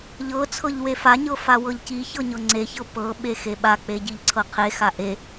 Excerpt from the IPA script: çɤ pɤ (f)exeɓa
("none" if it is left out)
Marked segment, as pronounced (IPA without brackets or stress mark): ɓ